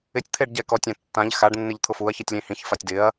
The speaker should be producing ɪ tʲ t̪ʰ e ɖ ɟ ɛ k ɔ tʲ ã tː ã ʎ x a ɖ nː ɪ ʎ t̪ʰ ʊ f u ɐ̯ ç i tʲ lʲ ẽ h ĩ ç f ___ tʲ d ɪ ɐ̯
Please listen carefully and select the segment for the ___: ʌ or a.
a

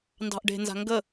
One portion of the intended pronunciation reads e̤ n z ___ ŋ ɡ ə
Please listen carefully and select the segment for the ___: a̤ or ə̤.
a̤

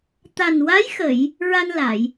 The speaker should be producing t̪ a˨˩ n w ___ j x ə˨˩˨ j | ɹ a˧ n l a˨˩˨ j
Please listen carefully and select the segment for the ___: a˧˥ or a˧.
a˧˥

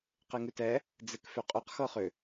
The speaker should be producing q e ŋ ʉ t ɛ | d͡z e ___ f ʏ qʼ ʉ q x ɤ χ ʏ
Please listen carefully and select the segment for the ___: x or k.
k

